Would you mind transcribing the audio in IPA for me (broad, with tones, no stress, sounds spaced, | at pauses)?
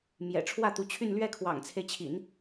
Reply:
m j ɛ̰˨˩ ʈ͡ʂʰ w ä˥˩ t̪ u˧˥ t͡ɕʰ y˥˧ n l ɥ ɛ˥˩ kʰ w ɑ̰˨˩ ŋ t͡sʰ e˦ ɪ̯ t͡ɕʰ ḭ˨˩˦ n